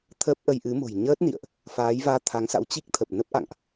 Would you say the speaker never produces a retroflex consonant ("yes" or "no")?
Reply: yes